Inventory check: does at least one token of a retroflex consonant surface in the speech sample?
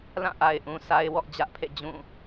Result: no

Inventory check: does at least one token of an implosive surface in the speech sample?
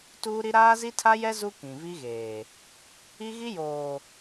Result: no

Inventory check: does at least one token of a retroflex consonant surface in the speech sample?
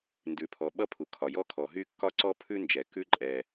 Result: no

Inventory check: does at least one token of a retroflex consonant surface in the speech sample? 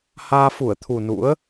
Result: no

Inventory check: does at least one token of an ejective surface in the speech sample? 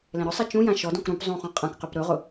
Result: yes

